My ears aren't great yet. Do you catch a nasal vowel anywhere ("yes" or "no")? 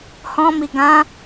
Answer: yes